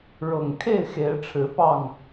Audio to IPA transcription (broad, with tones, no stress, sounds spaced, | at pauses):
ɻ ɤ˨˩ ŋ kʰ e˥˨ ɪ̯ x e˨˦ ɪ̯ ʈ͡ʂʰ ɻ̩˨˦ p ɑ˥˨ ŋ